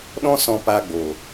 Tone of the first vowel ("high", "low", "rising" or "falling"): high